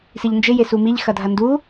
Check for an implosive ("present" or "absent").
absent